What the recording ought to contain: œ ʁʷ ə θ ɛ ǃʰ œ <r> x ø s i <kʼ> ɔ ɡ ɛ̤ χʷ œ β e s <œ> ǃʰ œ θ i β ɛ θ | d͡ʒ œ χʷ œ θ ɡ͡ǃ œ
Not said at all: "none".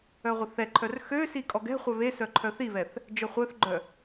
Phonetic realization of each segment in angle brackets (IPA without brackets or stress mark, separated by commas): r, kʼ, œ